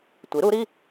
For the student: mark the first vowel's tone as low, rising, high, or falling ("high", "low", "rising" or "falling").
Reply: rising